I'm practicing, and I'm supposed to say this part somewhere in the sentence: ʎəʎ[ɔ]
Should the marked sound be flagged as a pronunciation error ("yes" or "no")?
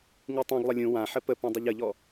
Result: no